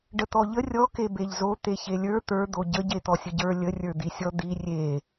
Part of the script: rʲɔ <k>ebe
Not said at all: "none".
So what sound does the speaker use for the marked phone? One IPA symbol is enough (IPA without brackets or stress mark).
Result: k